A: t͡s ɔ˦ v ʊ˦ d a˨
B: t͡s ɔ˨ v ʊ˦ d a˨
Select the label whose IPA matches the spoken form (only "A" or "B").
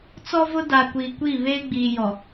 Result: A